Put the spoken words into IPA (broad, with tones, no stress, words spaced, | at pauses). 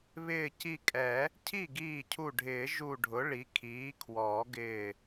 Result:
βɪː˧˩ci˧˩kʼɛ˨˩˦ | cʰi˥˩ɡiː˧˩cʰu˧˩ɖʱɪː˨˩˦ ʒu˧˩ɖʱʊ˩˥ ɭi˩˥ kʰiː˩˥kʰwɔː˨˩˦ɡɪː˧˩